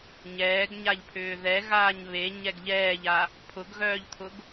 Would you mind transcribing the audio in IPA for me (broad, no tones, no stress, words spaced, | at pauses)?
ɲɛːɡɲaʎpʰʏː ðɛɣaːɲ βe ɲɛɡʎɛːʎa | pʰʊɡɣœːʎt̪ʰʊɡ